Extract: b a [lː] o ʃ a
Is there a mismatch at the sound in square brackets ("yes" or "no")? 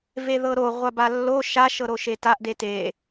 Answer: no